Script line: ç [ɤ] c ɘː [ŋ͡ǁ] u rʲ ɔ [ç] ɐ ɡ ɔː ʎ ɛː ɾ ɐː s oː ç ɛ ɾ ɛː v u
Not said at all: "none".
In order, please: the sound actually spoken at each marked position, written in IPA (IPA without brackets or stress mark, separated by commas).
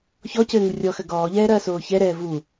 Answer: ɔ, ŋ, x